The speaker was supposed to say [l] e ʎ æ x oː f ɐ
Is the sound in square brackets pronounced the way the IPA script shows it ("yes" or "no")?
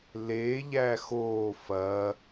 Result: yes